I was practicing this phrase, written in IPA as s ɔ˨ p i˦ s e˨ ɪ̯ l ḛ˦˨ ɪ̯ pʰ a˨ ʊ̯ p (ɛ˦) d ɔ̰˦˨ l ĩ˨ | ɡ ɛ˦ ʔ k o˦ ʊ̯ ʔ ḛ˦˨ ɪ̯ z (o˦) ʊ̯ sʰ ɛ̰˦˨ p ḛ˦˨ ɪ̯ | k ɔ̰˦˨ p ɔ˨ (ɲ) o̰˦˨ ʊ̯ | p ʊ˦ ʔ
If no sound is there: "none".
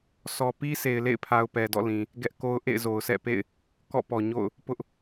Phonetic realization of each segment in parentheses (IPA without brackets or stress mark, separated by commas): ɛ˨, o˨, ɲ